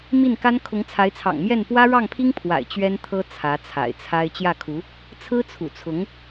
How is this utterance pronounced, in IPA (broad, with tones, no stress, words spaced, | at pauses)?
mi˥˩nka˥n kʰʊ˧˥ŋt͡sʰa˧˥ɪ̯t͡sʰɑ̰˨˩ŋmjɛ˥˩n pwä˥ɻɑ˥˩ŋpʰi˥ŋpʰwa̰˨˩ɪ̯ t͡ɕɥɛ˥nt̪ʰɤ˥ t͡sʰä˧˥t͡sʰa̰˨˩ɪ̯t͡sʰa˥ɪ̯ t͡ɕjä˥˩kʰu˧˥ | t͡sʰɹ̩˥t͡sʰṵ˨˩t͡sʰʊ˧˥ŋ